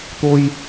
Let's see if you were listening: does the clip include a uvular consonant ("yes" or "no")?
no